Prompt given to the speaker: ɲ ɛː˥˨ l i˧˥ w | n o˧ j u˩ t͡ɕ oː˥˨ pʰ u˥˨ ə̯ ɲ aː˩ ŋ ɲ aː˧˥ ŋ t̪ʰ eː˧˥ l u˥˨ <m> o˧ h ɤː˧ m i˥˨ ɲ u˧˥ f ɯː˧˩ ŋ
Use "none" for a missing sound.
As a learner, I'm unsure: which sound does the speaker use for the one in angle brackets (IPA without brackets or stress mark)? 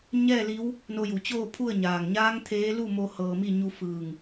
m